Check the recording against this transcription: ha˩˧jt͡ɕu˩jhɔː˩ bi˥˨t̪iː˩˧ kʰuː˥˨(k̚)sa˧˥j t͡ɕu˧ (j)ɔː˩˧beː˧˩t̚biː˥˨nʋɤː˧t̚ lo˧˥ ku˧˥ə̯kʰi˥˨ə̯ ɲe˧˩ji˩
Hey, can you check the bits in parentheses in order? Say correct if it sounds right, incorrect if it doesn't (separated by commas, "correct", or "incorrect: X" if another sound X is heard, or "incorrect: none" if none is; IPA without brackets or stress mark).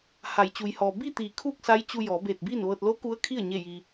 correct, correct